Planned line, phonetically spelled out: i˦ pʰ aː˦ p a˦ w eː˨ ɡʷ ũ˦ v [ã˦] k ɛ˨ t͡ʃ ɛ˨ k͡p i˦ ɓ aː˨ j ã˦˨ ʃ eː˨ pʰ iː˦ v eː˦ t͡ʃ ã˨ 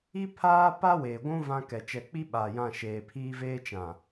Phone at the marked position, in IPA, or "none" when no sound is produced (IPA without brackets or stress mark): ã˦